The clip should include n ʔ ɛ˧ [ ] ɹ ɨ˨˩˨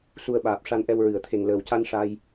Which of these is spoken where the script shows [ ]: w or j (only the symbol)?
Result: w